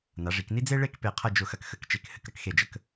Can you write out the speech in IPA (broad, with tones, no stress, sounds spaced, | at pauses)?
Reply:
n a˩˧ ʐ i˩˧ k n i˥ d͡z e˥ ɭ e˥˧ k p e˧˩ qʰ ɐ˥˧ d͡ʒ ʊ˧˩ x ɐ˧ k x ə˩˧ k t͡ʃ e˧˩ k h ɘ˧ k ɾ ɐ˧ k x e˧˩ d͡ʒ ə˧ k